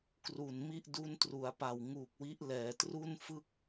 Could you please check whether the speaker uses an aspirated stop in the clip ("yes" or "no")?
no